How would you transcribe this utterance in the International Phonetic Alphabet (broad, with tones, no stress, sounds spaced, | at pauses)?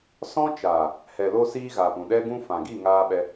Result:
s ɔ̃˦ t͡ʃ aː˨ | h ɛ˨ l o˦ s iː˦ ɣ aː˨ p ũ˨ ɗ ɛ˦ ɡ ũ˦ f ã˨ ɡ i˦˨ ŋ aː˧ ɓ ɛ˧